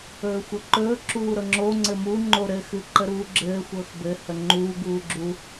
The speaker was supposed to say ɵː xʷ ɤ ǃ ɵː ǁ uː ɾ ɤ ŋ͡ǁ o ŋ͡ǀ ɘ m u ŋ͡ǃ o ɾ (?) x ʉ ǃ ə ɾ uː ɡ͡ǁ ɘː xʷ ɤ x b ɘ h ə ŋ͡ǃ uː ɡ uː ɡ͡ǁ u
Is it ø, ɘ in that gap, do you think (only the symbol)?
ɘ